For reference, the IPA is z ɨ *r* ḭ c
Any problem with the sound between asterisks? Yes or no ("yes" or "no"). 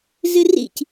no